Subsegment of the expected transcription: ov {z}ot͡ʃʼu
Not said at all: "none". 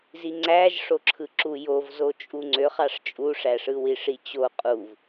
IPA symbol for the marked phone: z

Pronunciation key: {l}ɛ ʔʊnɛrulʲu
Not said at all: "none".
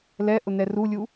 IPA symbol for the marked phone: l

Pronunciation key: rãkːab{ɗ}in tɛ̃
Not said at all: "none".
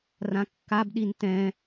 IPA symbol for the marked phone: ɗ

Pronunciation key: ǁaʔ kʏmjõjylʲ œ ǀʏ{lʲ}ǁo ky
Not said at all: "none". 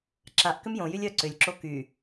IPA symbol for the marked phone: lʲ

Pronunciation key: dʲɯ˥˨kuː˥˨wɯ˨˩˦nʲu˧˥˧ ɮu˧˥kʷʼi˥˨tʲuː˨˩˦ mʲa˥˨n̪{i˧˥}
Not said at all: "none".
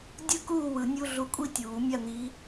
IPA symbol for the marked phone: i˧˥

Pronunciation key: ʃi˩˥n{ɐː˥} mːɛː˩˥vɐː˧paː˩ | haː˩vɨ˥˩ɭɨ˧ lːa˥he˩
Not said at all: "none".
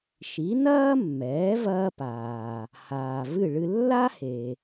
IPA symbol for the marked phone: ɐː˥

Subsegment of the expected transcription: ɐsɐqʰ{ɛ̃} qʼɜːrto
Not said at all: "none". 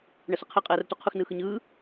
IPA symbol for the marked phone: ɛ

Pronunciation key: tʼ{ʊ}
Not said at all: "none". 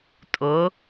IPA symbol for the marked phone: ʊ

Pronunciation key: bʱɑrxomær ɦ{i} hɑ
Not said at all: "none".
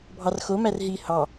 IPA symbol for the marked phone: i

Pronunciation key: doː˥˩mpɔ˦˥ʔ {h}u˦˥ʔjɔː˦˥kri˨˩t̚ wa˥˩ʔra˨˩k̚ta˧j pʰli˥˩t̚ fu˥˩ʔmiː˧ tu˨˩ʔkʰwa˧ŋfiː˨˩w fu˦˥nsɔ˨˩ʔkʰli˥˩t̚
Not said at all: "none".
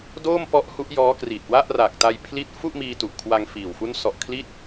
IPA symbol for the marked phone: h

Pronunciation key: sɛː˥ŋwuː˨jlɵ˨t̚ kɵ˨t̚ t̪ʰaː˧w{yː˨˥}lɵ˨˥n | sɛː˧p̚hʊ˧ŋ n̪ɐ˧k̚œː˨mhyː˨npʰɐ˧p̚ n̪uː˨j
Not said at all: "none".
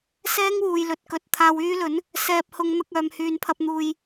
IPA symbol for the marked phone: yː˥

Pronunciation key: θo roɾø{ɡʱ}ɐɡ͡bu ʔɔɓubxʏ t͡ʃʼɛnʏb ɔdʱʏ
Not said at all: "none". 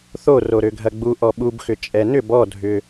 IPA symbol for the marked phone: ɡʱ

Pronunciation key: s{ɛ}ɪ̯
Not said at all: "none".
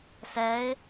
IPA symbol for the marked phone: ɛ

